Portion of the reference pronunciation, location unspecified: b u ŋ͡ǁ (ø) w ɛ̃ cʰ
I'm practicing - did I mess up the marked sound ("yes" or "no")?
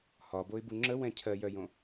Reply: yes